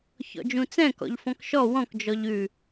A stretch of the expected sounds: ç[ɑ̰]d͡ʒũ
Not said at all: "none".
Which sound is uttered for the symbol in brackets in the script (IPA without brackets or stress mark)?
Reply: ɔ̰